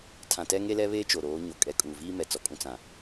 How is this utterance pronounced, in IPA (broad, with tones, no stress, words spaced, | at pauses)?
tʰã˨tɛ˦ŋe˦lɛ˦ βeː˦t͡ʃo˨ ɾoː˨˦ɲo˨ kʼɛ˨kʼuː˨viː˦mɛ˨ t͡sɔ˨kʼũ˦ t͡sã˨